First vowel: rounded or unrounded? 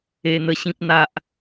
unrounded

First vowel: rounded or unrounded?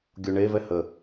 rounded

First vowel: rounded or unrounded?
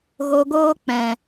rounded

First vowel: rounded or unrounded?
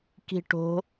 unrounded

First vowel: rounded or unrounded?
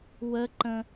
unrounded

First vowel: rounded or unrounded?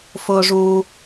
rounded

